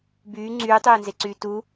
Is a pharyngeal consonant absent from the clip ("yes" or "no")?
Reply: yes